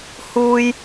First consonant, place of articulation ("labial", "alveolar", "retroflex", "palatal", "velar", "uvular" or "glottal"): glottal